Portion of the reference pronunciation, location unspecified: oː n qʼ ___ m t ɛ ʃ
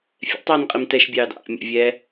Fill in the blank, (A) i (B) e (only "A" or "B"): A